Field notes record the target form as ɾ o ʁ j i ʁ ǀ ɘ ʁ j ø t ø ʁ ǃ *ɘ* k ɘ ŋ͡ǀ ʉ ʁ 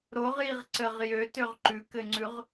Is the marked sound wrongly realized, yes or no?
yes